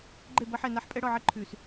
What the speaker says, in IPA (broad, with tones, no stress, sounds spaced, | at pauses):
ɡ͡ǃ e˦˨ b ʌ˦ ħ ɛ˦˨ n a˦ ħ pʼ ɛ˦ ɽ ɔ˦˨ ʕ ɛ˦ ǃʰ ʉ˨ s